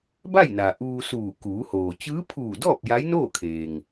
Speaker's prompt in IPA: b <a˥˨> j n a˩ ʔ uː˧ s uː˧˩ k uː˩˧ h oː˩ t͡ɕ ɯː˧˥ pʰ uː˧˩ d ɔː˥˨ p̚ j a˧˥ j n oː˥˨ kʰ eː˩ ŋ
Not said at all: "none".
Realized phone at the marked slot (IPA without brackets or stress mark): a˥˨